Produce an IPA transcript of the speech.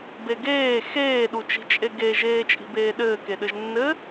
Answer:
b e ɡ eː x eː ɗ u t͡ʃ i̤ t͡ʃʼ e ɡ e ʒ eː t͡ʃʼ i̤ b eː ɗ ɘː k e ɗ ɘ ʒ nː ɘ

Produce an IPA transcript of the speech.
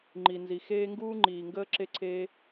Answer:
ŋ͡ǃ i˨ n z i˨ x eː˧ ŋ ɡ uː˧ ŋ͡ǃ iː˨ ŋ ɡ əː˧ ǁ e˧ ǀʰ eː˧

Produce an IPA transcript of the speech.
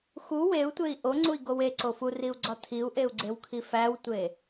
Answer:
x u w e u̯ tʷ e i̯ ʔ o ŋ͡ǀ u i̯ ɡ o w e ǀ o f u r i u̯ ɡ͡ǀ ɒ tʰ i u̯ ʔ e u̯ ɡ͡ǀ e w kʰ i f æ w tʷ e

